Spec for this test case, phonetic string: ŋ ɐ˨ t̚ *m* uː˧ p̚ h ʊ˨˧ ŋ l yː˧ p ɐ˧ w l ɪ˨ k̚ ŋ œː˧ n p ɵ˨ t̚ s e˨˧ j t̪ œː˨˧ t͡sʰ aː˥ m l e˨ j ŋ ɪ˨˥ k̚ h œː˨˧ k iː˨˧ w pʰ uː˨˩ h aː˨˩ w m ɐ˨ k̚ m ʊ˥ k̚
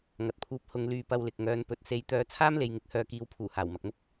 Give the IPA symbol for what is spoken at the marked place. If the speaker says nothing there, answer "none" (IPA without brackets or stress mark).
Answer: pʰ